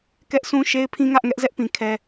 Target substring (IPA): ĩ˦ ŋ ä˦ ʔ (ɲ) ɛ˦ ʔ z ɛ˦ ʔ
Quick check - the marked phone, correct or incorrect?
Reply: incorrect